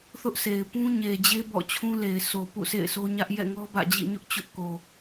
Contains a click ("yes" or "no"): no